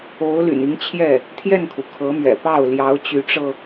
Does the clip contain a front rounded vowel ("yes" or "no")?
yes